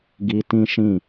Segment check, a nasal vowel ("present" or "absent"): present